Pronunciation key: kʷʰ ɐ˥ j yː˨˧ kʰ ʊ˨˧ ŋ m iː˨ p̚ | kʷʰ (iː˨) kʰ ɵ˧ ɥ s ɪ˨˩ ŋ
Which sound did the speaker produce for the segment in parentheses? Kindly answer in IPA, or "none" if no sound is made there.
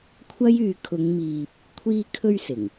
iː˧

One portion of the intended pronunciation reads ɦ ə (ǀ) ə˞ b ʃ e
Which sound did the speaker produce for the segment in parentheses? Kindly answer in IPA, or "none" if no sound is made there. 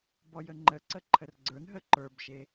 ǃ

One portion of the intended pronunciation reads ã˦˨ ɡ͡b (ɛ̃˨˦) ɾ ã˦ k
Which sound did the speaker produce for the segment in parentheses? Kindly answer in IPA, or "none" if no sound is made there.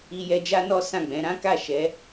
ɛ̃˨˦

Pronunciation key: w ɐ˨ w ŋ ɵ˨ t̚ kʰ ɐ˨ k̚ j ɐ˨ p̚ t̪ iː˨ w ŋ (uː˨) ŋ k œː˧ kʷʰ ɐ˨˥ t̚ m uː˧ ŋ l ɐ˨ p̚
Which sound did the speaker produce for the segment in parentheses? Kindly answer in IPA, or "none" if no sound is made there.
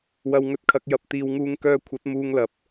uː˧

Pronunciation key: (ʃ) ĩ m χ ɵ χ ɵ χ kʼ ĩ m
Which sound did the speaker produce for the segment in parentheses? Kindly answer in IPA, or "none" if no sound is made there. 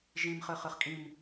ʒ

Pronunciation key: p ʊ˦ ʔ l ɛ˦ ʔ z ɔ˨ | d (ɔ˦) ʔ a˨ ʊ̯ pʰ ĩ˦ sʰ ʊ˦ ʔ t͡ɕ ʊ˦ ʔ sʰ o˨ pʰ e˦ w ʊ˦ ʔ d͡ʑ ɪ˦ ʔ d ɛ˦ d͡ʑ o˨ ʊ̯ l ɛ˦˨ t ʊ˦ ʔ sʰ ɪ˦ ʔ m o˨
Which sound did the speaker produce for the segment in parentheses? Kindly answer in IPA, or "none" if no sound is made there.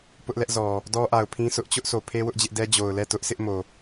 ɔ˦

